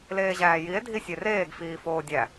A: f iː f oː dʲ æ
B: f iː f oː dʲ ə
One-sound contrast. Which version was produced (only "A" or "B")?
A